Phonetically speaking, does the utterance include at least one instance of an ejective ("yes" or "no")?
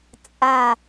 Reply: yes